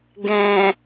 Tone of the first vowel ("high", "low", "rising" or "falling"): low